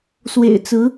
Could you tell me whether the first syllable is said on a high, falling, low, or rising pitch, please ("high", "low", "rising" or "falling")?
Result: low